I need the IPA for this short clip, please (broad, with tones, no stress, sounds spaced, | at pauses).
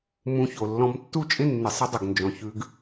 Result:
m ũ˧ ç o˨ lː ɔ̃˧ m tː u˦ t͡ʃʼ ɪ˦ nː ɪ˨ sˤ ə˧ dˤ ʊ˨ ɡ n d͡ʒ ɔ̃˨ ç ʉ˧ ɡ